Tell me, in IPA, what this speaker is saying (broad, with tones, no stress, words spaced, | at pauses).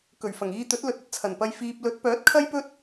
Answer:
kɵ˨˩ɥfɐ˨˩ŋiː˧t̪ɵ˨˥t̚ lɵ˨t̚ɵ˥t̚t͡sʰɐ˨˩npɐ˧j fiː˨p̚lɵ˨˥t̚ pœː˨˥t̚kʰɐ˥jpɵ˥t̚